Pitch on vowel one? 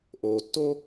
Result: low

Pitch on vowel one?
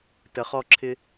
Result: low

